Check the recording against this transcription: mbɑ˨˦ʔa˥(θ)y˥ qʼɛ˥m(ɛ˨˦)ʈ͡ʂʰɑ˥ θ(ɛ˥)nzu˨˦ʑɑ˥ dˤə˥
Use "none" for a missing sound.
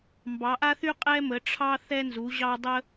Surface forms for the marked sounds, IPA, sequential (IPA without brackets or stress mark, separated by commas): θ, ə˨˦, ɛ˥